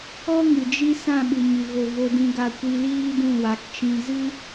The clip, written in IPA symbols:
ɔ˦ ŋ ɨ˨ d͡ʒ i˧ s ã˦˨ ɓ ɨ˨ ɲ ɨ˨ ɣ o˨ v o˧ d ĩ˧ ɡ a˧ kʷ i˧ l iː˦ d ũ˦˨ w a˨˦ k t͡ʃ ĩ˧ z ɨ˦

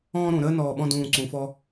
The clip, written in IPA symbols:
ɔ̃ː˥ ɾ ũ˩˧ ɾ əː˥ n ɔː˧˩ ɓ ɔ̃˥˧ d ũː˧˩ ǀ ũ˩˧ f ɔ˧

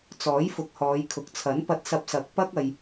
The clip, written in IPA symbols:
t͡s ɔː˨˥ j f ʊ˨˥ k̚ h ɔː˨˧ j kʰ ʊ˨ k̚ t͡sʰ ɐ˨˥ n p ɐ˧ t̚ s ɐ˧ p̚ s ɐ˨˥ k̚ p ɐ˥ k̚ ɐ˧ j

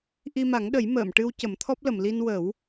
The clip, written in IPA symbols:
ʔ i˧ m a˨˩˦ ŋ ɗ ə˨˩˦ j m əː˨˩˨ m ʈ ɨ˧ w c ə˨˩˦ m t̪ʰ ɔ˦˥ p̚ l ə˨˩˨ m l i˧ n w ə˨˩˦ w

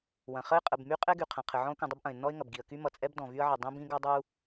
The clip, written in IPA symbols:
w ɐ̃˩ χ ə˥ ɪ̯ qʼ ə˩ b m y˥ qʼ ɛ˥ ɡ y˩ qʰ ɐ̃˩ qʰ ɘ˩ ʕ ɔ̃˥ ʊ̯ k ũ˩ dˤ ə˥ b ʔ ɐ̃˩ ɪ̯ nː ɔ˥ ɪ̯ ŋ ɐ˩ b ɡ i˩ ə̯ k y˥ m ʌ˩ t͡sʼ ɛ˥ b d ɔ̃˩ v y˥ ə̯ ʕ ə˩ dˤ ĩ˥ b ĩ˥ ɡ ʌ˥ dˤ u˥

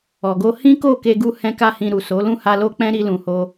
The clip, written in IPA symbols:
ɔ˨ ɡ o˧ h ĩ˦ k o˦˨ k e˧ ɡ u˧ h ɛ̃˦ k a˦ h ĩ˧ ɾ u˨ s o˨˦ l ũ˦˨ h a˧ l o˦ k͡p ɛ̃˦ ɾ i˧ l ũ˨ h o˧

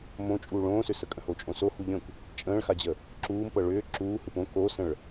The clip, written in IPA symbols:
m õ t͡ʃʼ uː ɭ õː s ʏ s ə kʼ ə̃ h o t͡ʃʼ õ s o h u ʎ ə̃ kʷ | t͡ʃʼ ə̃ː ɭ x a d͡ʑ ə | ǁ uː m p ɤ ɭ ʏː ǁ uː h ɯ p õ k o s ə̃ ɭ

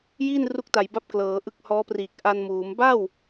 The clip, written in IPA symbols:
j iː˥˩ n r u˥˩ k̚ t a˨˩ j b a˦˥ p̚ k l ɤː˩˦ ʔ ɯ˦˥ k̚ h ɔː˦˥ p r iː˨˩ k̚ ʔ a˧ n m uː˩˦ m b a˥˩ w

